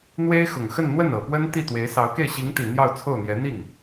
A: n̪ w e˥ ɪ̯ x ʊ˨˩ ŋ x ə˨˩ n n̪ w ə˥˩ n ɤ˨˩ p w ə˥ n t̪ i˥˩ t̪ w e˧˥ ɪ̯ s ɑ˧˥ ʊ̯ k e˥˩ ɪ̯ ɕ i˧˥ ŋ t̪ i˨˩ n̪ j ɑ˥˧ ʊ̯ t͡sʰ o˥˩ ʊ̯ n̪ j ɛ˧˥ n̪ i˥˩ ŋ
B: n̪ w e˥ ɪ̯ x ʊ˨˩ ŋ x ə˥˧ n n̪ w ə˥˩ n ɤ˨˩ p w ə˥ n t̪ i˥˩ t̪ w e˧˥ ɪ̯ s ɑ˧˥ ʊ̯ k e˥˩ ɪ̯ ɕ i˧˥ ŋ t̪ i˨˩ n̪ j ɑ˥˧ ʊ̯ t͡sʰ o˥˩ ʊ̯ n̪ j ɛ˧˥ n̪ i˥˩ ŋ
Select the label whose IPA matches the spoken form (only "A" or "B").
B